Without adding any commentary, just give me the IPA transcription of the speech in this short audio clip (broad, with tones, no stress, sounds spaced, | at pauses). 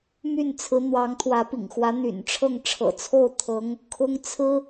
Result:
m y˥˩ n t͡sʰ ɹ̩˧˥ n̪ w ɑ˧˥ ŋ t̪ʰ w ä˧˥ p ḭ˨˩ ŋ x w ä˧˥ n̪ y̰˨˩ n ʈ͡ʂʰ ɤ˥˩ ŋ ʈ͡ʂʰ ɤ̰˨˩ t͡sʰ o˥˩ ʊ̯ t̪ʰ ɤ˧˥ ŋ | kʰ ʊ˥ ŋ t͡sʰ ɹ̩˥